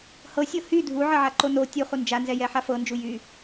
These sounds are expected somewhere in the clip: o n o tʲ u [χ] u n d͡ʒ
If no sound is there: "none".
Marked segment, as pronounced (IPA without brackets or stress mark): χ